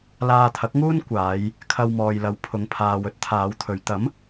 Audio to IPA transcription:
l aː˧ t̪ʰ ɐ˨˥ k̚ ŋ uː˥ n kʷ aː˨˧ j | kʰ ɐ˧ w m ɔː˨ j l ɐ˨˧ w pʰ ʊ˨˧ ŋ pʰ aː˨ w ɵ˥ t̚ t̪ʰ aː˨˧ w t̪ʰ ɵ˨˧ ɥ t̪ ɐ˨˥ m

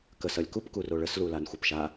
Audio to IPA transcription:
k ə s ʌ lʲ k u p k u r o ɭ ə s l u l a n xʷ ʌ p ʃ a

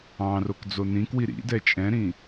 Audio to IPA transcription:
ɑ̃ r o k d͡z o n ĩ k w i ɾ ḭ d ɛ t͡ʃʼ ɛ̃ ɾ ĩ

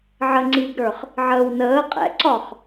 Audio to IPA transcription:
ʕ ə ŋ͡ǀ iː ɡ ɾ ə˞ χ | ʕ əː w n əː qʼ ɛ̰ ǀ ɒ χ

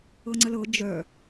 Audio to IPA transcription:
ɤ ŋ͡ǀ ə l ɤ d͡ʒ œ

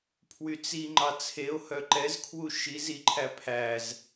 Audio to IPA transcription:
pʰ w y t͡s i ŋ͡ǃ ɑ t͡sʰ e o̯ h œ ǃ ɛ z kʰ w u ʃ i z i ǃʰ æ pʰ æ z

